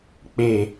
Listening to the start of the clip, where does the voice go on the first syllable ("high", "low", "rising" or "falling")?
low